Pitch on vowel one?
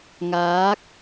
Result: rising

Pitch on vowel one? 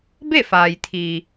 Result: falling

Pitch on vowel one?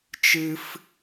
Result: high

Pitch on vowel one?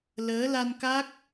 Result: rising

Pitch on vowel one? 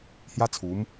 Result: high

